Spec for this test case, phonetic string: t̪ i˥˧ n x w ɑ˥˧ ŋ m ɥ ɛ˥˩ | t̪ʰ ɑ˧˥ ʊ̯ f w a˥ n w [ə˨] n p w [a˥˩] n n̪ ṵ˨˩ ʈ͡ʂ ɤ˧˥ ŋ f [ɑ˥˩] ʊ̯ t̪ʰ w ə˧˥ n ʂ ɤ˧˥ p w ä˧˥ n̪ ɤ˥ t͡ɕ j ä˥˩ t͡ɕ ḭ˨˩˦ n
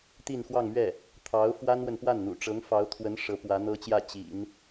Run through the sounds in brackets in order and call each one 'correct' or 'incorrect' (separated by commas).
correct, correct, incorrect